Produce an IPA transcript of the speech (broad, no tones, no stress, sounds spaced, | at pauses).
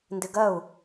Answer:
n d ɪ ɡ ɜ u̯